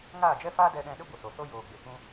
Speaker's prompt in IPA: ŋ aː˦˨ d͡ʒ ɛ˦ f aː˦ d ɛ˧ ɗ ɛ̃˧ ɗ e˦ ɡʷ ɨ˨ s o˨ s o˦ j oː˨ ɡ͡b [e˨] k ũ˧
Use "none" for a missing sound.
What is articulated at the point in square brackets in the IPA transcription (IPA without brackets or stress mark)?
e˨